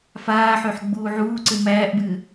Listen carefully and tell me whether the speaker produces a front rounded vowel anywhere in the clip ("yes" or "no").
yes